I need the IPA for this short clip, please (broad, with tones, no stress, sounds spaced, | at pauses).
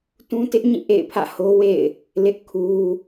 t ũ˦ t ɪ˦ ʔ ɲ ĩ˦˨ ʔ ḛ˦˨ ɪ̯ pʰ ä̰˦˨ h o˦ w ḛ˦˨ ɪ̯ | l ɪ˦ ʔ kʰ u˦